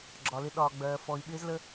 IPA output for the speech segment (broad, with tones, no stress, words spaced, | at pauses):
ɡ͡ǁɒ˩lɪ˨ ɗɒː˩ ɡ͡bɜː˩fɔ˩i̯ ɓɪː˨zlə˨